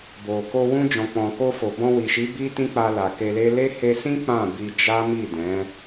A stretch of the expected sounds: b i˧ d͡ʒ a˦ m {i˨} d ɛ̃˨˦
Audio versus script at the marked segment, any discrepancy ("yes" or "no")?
yes